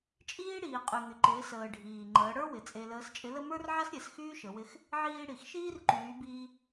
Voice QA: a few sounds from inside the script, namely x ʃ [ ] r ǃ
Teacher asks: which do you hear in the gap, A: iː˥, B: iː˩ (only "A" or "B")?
A